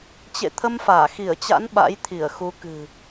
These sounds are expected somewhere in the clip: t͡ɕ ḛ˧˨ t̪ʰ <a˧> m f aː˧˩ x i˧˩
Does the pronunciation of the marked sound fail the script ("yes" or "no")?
yes